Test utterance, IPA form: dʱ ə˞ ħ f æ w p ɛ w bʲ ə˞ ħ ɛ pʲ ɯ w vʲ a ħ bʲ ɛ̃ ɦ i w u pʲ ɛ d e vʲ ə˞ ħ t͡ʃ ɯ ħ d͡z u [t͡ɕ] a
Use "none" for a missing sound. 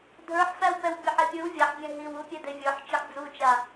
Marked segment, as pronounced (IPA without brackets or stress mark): t͡ʃ